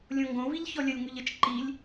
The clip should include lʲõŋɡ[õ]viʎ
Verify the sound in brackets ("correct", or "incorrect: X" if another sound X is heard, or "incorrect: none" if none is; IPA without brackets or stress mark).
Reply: correct